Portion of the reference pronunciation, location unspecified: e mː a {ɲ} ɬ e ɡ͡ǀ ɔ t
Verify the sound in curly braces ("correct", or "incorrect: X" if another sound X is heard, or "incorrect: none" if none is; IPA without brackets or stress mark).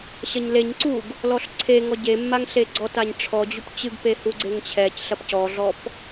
incorrect: ŋ